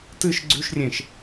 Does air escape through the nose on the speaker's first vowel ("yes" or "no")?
no